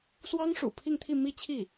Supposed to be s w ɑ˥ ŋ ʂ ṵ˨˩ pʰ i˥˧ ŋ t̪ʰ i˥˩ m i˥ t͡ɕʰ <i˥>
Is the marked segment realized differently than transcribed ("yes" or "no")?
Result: yes